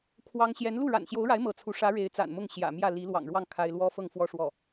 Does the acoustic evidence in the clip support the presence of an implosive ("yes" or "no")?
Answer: no